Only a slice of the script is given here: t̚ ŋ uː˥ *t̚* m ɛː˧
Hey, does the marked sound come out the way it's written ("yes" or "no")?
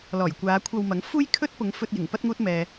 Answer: yes